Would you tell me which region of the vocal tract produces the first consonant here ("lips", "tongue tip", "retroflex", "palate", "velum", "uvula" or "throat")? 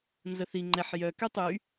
tongue tip